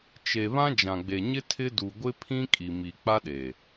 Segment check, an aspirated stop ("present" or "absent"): present